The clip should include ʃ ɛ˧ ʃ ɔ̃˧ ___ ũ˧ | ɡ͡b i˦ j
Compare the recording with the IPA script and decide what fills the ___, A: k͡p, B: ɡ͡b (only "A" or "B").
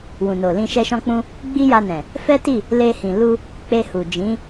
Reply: A